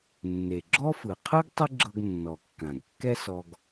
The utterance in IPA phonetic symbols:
nːe˩ɡ͡ǁɔ˥fɯ˩ qʰɯ˥ɡ tˤɯ˥ɡ͡ǁɤ˧ɡnːɔ˩ kːã˩ɡkːɛ˥sɔ˧ɡ

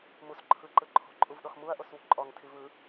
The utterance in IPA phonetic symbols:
mus ǃʰɯǃɯ ǃʰo̤ǃʼuv ɗɔxmuɐ̯ ʔoswṳǃʼɔŋ tʰivɯ

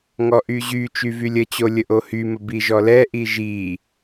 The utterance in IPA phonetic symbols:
ŋɔʔyʑy t͡ʃyvylʲət͡ɕo lʲəʔohymə biʒɔlɛ ʔiʒi

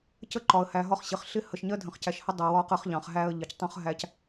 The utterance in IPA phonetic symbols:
cə˦ǃɒ˨ə̯hæ˨ ɦɒ˦χɕɪ˨χ ɬɪ˦hə˨ʃ ɲɜ˦dʱə̃˨χcæ˨ʃhə˦ dˤɜ˨wɒ˦ qə˦χʎɑ̃˨χ ɦæ˦ə̯ʎɪ˨ctˤũ˦χ ɦæ˦c

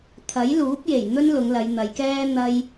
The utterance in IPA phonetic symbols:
t̪ʰɐ˨˥jluː˨˥p̚je˨˩j n̪ɵ˥nlʊ˨˧ŋ lɐ˨˧jn̪ɐ˨˧jkɛː˥ n̪ɐ˥j

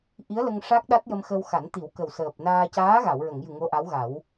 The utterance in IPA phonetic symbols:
ʔi˧˥ə̯lə˧ŋʂa˦˥k̚ ɗa˦˥t̚jə˧mxə˧wxa˨˩˦n t̪i˨˩˦wkə˨˩w səː˨˩p̚naː˧ caː˧˥ɣa˨˩˨wɹə˨˩˨ŋjɨ˨˩ ŋo˧˥ʔa˧˥w ɣa˨˩˦w

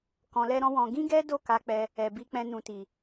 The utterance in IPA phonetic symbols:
kɔ̃˧lɛ˦ɾɔ̃˦wɔ̃˧ ɡĩ˦ɡɛ˦do˦˨ ka˨˦k͡pɛ˧ | ɛ˨bi˧k͡pɛ̃˧ nũ˨ti˨

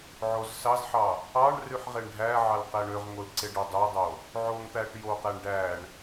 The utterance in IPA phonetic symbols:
ʕozsɑzħɑ | ɑɳ ryħʁeɳɖʱæʕɑl qæɳøʁŋol ǀeɖodˤødˤo | ʕoŋt̪æʈ joqæɳ ɖæɳ

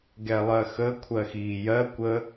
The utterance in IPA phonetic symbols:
ɡɛlˠɜxə kʷʰɜxiːjɜ kʷə

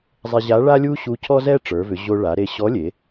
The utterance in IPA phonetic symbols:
zˤe˧ʑa˧˥ ɭa˥lʲu˥ɕu˧˥ cʰɔ˥zɛ˥ ʈ͡ʂə˞˩˧vʏ˩˧ ʑo˧ ɭa˩˧ɾe˧ ɕɔ˧˥lʲe˩˧

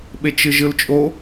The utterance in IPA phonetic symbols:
ɓet͡ʃɯʒɯlt͡ʃʼo

